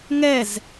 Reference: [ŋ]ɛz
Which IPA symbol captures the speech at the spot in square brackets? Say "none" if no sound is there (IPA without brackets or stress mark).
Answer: ŋ